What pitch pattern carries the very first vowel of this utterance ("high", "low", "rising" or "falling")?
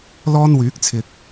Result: high